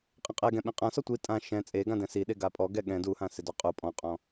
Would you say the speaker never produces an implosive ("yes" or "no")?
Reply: no